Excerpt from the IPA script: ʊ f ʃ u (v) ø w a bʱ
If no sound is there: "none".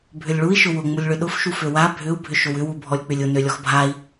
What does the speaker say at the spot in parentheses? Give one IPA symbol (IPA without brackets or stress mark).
f